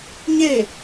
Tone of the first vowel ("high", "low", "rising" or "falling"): falling